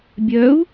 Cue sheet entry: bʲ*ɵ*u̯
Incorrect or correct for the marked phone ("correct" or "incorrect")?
incorrect